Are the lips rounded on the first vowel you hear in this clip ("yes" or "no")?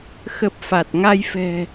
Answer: no